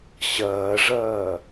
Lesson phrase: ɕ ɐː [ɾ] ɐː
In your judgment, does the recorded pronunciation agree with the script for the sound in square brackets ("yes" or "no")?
no